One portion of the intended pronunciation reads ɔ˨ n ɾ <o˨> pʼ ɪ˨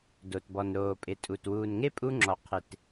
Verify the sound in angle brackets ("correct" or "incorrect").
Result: incorrect